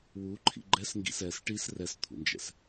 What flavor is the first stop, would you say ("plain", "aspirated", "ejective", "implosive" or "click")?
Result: click